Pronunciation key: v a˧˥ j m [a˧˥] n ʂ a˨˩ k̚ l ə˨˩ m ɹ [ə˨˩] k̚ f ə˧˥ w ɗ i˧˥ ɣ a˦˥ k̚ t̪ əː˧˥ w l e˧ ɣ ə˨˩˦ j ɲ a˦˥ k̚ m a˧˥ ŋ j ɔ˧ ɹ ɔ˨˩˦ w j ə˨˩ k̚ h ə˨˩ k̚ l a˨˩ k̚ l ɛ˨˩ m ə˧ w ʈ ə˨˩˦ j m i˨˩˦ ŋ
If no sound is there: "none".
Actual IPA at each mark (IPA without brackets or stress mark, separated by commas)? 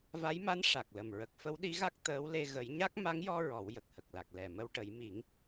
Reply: a˧˥, ə˨˩